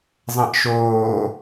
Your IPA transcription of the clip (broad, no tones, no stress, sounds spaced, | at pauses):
zˤ ɐ̃ ʔ ʃ oː